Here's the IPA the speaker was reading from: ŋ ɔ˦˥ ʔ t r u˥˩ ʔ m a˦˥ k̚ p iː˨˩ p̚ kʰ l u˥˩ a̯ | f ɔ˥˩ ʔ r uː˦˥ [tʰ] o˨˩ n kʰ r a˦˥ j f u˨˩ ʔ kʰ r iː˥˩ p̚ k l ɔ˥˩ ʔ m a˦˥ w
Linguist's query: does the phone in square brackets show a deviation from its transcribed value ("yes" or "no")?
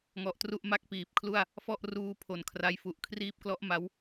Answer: yes